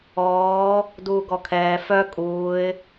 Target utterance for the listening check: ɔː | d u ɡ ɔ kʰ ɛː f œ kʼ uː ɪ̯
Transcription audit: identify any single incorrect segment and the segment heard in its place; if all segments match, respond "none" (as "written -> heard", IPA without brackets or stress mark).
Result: u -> uː